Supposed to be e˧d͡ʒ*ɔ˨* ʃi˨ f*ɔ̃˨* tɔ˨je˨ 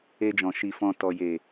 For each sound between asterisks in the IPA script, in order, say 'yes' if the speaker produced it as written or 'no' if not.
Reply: no, yes

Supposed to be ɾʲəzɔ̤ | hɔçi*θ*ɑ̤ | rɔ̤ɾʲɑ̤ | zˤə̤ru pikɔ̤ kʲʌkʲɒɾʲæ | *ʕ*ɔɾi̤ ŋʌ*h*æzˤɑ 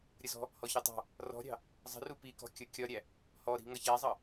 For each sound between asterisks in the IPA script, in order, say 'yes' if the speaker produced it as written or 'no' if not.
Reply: no, no, no

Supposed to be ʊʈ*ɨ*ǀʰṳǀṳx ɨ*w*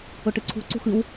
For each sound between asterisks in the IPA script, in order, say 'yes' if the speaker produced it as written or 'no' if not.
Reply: yes, yes

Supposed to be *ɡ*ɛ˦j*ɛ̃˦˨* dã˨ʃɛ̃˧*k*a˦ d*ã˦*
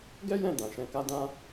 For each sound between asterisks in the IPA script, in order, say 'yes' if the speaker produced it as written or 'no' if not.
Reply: yes, yes, yes, yes

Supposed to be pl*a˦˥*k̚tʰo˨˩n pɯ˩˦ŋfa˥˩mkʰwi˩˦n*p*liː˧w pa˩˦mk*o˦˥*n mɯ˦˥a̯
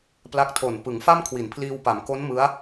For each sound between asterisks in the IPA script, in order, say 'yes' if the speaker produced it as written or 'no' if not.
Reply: yes, no, yes

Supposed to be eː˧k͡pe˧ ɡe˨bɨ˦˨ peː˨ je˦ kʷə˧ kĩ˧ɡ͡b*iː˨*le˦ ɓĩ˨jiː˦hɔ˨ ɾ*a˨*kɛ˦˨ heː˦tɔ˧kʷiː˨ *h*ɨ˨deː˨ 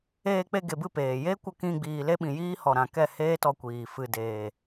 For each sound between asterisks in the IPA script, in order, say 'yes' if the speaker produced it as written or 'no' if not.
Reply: yes, no, no

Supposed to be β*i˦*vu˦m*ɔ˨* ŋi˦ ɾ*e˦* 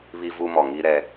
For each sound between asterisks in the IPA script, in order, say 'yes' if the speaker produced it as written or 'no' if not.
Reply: yes, yes, no

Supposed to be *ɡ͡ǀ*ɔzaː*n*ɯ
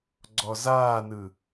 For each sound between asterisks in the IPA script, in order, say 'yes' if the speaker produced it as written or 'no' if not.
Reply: yes, yes

